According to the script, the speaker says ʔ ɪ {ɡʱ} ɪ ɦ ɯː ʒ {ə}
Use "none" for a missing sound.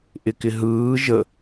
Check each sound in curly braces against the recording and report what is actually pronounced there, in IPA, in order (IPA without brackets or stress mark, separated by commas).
k, ə